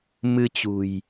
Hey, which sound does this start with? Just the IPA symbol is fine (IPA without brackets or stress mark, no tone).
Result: m